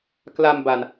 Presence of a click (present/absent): absent